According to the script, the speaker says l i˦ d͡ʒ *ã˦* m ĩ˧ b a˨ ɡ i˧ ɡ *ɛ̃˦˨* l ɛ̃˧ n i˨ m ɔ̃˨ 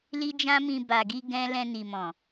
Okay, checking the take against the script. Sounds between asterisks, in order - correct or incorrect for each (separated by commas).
correct, incorrect